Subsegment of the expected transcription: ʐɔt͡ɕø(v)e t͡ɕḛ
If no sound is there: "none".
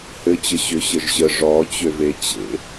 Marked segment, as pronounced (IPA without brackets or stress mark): v